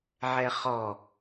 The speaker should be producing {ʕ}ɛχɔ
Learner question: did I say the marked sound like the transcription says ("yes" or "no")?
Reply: yes